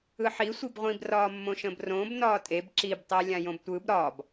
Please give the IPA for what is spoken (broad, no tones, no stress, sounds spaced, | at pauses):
ɯ ħ i sʷ i b ʁʷ ĩ b r ɒː mː õ ʃ ə̃ː b r õː b n ɒː tʼ e b ǁ i b tˤ i lʲ ã j õ b tʷ ɯ b ɾ ɒ b